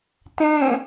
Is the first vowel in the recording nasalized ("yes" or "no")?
yes